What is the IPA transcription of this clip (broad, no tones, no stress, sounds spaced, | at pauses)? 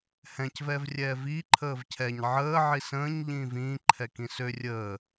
h ɛ̃ c v ɛː v rʲ ɛː v iː ǃʰ əː v cʰ ɛ ɲ ʕ əː ʕ i s ə̃ː ɲ ʎ ĩː v ĩː ǃʰ ɛ k ĩ s ø rʲ əː